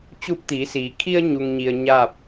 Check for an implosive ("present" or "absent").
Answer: absent